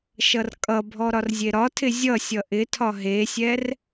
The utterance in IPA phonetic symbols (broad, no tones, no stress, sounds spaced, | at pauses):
ʃ ʌ r kʼ ʌ bʱ ɔ ɾ ɒ r zʲ e ɾ ɒ tʰ ɪ zʲ ʌ sʲ ʌ ʔ ɪ tʰ ɒ ɦ e sʲ ɛ r